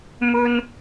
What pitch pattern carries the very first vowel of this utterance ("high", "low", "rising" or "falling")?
high